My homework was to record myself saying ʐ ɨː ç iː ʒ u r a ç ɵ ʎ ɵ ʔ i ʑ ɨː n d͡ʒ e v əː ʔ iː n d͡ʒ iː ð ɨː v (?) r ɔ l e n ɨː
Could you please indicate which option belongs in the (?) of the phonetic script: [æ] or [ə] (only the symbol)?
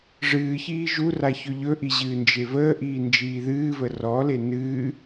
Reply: ə